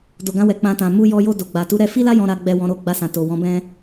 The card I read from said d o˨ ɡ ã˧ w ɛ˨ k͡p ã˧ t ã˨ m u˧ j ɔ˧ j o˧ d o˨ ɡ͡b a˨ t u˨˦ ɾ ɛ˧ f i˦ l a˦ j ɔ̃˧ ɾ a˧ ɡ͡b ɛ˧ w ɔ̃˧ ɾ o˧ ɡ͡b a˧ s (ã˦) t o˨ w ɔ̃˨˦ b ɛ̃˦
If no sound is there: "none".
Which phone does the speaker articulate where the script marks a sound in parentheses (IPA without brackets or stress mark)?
ã˨